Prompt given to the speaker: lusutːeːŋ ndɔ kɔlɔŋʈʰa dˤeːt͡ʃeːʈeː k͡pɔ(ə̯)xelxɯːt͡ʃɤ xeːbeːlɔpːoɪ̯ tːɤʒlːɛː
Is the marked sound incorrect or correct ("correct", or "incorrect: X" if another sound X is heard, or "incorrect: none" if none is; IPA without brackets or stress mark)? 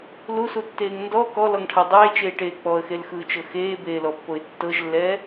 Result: correct